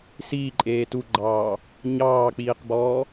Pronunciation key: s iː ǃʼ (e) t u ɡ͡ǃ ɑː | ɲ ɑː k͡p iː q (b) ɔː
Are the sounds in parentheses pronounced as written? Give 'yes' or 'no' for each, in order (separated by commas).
no, yes